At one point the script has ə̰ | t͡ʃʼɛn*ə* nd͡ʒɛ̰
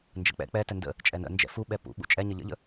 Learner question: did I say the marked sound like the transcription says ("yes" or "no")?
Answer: no